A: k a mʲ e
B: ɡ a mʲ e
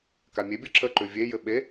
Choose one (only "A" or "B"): A